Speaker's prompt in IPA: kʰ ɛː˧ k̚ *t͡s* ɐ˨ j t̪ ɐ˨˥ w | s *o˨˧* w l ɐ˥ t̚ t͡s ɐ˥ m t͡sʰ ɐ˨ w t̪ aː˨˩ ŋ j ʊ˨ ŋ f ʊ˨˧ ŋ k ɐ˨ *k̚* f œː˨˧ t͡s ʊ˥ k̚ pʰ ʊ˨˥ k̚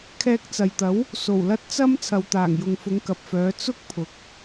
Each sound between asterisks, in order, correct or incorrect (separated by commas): correct, incorrect, incorrect